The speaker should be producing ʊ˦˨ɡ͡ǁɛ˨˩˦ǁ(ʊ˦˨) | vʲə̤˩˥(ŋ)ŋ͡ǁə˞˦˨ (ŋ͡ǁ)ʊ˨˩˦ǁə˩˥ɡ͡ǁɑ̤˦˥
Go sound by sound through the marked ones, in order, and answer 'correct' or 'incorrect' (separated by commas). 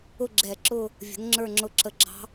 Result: correct, correct, correct